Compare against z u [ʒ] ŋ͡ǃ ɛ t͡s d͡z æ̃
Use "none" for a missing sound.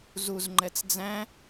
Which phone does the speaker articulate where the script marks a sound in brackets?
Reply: z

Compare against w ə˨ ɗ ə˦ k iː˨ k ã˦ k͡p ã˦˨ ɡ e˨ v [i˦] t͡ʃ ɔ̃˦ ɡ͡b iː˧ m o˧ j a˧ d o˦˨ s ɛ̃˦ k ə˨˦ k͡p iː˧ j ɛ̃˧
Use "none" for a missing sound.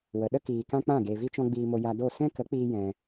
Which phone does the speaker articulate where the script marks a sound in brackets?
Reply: i˦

